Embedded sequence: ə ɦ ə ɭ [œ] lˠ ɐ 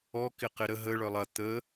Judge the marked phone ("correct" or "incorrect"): correct